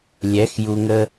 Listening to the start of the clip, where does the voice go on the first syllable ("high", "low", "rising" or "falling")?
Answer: rising